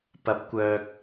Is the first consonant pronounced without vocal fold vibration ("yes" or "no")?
yes